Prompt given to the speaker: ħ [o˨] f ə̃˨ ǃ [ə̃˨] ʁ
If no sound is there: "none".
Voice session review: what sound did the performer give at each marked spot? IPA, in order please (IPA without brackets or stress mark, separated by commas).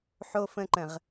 o˨, ə̃˨